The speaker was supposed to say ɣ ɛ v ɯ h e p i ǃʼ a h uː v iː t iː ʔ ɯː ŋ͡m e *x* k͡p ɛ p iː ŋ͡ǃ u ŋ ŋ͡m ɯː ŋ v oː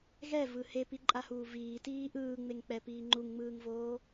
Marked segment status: incorrect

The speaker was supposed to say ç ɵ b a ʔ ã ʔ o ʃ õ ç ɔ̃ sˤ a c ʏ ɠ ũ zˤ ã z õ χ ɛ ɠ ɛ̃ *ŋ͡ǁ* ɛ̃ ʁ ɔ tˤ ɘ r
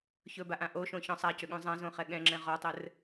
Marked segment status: correct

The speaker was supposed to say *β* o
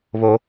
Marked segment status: correct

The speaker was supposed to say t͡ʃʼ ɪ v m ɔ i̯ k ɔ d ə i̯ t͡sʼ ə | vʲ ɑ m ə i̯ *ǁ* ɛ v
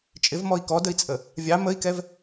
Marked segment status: incorrect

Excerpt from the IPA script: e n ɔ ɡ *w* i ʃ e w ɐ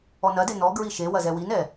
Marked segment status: incorrect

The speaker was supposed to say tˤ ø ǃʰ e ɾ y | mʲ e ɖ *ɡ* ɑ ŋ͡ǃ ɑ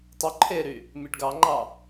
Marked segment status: correct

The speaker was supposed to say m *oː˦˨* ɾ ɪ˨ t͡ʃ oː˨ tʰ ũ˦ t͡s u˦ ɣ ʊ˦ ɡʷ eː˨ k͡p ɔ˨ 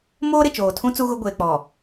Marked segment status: incorrect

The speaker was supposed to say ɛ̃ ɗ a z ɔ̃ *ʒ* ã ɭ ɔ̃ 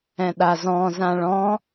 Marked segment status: incorrect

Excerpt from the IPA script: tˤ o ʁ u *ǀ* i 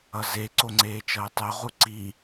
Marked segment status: correct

